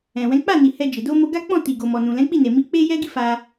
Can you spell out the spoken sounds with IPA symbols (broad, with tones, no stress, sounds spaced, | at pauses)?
ɛ̃˨ w ɛ̃˨˦ k͡p a˦˨ n i˨ h ɛ˧ d͡ʒ e˨ d o˧ m o˧ ɡ a˦ k͡p ɔ̃˦˨ t i˨ ɡ o˨ m ɔ˨ n ũ˨ l ɛ̃˨˦ k͡p i˦˨ n e˨ m i˨˦ k͡p e˦ j ɛ˦ ɡ i˦ f a˧